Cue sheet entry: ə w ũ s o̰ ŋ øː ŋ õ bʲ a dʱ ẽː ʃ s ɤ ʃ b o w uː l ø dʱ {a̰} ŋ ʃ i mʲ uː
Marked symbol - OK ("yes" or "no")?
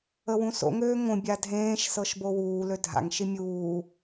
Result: yes